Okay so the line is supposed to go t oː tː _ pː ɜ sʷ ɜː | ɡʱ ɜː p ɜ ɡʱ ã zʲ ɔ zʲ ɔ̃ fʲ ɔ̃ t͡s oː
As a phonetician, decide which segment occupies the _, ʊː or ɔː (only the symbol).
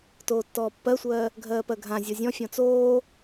ɔː